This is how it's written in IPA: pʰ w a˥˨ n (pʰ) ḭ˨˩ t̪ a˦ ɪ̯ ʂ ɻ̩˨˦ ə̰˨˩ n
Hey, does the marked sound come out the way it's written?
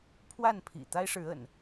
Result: yes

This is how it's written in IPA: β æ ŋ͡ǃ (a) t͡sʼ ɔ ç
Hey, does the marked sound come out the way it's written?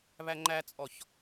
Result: no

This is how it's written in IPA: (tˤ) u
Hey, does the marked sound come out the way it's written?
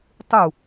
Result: yes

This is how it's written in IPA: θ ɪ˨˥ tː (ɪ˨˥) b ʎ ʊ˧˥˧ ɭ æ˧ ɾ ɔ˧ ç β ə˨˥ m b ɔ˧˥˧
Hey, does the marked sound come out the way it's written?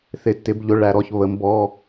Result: yes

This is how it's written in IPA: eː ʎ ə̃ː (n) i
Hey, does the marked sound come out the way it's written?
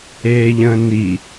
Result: yes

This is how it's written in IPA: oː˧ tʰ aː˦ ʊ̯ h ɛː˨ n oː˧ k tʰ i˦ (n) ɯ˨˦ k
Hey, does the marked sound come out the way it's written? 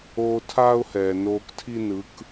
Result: yes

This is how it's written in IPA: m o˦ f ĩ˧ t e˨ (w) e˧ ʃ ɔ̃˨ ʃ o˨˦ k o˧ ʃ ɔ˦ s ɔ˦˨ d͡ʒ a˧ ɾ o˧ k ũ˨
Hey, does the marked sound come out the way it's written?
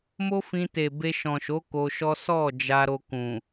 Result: no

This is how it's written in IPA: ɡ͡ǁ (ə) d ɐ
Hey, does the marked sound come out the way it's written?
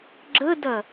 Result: yes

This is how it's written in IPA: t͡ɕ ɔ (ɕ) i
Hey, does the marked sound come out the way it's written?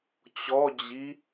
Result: no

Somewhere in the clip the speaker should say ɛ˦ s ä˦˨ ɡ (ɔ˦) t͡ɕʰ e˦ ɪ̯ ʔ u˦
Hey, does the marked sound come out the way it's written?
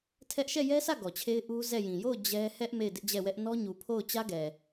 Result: no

